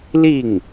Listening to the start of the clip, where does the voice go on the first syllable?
falling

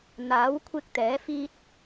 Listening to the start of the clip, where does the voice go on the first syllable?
rising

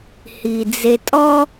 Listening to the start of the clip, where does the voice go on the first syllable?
low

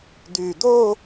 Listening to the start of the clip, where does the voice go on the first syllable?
low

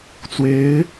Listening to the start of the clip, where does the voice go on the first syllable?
rising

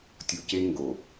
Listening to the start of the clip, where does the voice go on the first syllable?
low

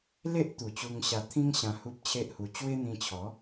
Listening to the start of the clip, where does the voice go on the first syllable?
high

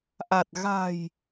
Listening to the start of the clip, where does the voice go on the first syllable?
low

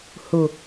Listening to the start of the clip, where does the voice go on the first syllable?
low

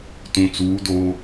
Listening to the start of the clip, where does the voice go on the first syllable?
low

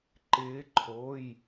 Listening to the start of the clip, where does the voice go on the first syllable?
rising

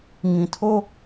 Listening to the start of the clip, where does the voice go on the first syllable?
low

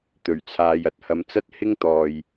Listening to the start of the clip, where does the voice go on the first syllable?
low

